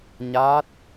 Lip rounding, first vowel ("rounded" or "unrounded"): unrounded